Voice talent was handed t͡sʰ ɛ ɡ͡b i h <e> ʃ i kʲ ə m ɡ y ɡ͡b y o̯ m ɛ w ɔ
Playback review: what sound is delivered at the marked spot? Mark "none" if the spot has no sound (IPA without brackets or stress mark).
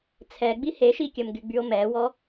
e